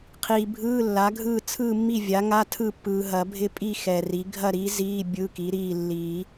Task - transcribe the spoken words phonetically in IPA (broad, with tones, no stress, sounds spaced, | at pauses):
qʰ iː˨ bʱ ɯː˧˥˧ lː a˩˥ ɡʱ ɯː˥˨ t͡sʰ ɯː˥˨ mː i˥˨ vʲ a˩˥ ŋ a˧˥˧ tʰ ɯ˥˨ pː ɯː˨ ɦ ɐ˨˩˦ bʱ ɪ˥˨ pʼ i˥˨ x ɛ˨ r i˩˥ ɡʱ ɐ˥˨ ɾ iː˩˥ z iː˧˥˧ bʲ ɯ˧˥˧ k i˩˥ ɾ iː˥˨ lː i˨˩˦